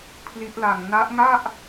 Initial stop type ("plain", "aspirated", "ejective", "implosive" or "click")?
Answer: aspirated